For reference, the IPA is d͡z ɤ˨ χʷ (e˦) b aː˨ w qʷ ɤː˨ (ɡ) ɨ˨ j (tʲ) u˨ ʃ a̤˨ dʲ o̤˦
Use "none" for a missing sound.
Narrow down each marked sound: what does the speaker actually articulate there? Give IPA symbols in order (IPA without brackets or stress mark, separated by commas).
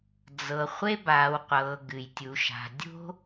e˦, ɡ, tʲ